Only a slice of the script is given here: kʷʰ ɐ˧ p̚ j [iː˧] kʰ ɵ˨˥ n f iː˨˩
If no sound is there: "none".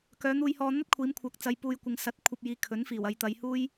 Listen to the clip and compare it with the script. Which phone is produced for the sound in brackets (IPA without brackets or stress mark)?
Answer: iː˨˧